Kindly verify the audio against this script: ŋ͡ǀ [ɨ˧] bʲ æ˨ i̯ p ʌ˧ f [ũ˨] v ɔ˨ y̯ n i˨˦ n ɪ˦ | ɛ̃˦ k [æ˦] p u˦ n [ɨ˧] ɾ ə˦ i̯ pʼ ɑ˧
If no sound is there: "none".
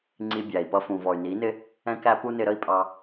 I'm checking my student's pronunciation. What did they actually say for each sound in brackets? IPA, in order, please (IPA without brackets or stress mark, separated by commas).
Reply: i˧, ũ˨, æ˦, ɪ˧